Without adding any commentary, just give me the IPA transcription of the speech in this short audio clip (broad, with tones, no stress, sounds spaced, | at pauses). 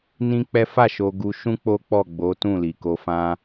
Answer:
n ĩ˦ k͡p ɛ˦ f a˦˨ ʃ o˧ ɡ u˧ ʃ ũ˦ k͡p o˦ k͡p ɔ˦˨ ɡ͡b o˨˦ t ũ˦˨ l i˨ k o˧ f ã˦